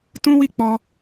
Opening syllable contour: high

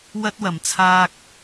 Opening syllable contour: high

